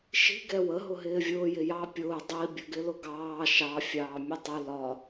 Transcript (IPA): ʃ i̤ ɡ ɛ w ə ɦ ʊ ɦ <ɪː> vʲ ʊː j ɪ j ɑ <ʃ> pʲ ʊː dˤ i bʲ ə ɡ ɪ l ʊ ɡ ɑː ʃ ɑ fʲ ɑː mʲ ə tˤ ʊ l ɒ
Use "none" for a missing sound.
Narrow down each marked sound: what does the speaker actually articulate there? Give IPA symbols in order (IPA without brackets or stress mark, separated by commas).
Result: ɪː, none